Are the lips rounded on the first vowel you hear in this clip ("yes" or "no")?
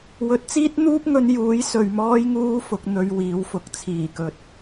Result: yes